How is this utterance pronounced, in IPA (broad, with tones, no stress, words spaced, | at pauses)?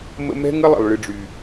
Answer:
mə̰˦ mɛ̤˦ŋə˦lˠə̰˨lˠ ɭɨ˦ɖ͡ʐy˦